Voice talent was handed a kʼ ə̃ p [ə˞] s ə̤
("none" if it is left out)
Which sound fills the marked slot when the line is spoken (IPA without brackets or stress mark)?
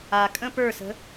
ə˞